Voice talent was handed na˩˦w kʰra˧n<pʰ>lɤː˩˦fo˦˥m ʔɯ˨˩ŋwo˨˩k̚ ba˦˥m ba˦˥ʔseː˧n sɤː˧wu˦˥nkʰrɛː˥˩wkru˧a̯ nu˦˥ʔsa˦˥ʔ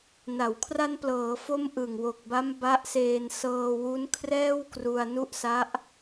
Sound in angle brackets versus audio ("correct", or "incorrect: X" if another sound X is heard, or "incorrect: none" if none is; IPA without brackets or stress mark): incorrect: p